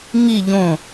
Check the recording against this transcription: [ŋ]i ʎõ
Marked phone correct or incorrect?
correct